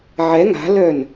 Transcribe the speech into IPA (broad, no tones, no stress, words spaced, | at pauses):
ʕɛ ŋa̤lœn